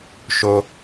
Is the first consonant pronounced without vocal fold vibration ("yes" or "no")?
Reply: yes